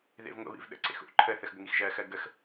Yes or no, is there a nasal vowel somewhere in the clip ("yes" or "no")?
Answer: no